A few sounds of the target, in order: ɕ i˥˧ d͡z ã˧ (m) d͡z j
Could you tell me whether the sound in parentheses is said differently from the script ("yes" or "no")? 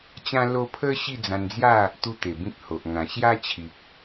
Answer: yes